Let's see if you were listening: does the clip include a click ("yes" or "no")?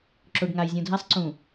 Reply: yes